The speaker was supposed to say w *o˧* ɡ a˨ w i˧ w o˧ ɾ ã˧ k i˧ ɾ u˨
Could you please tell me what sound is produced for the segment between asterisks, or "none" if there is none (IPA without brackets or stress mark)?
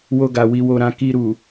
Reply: o˧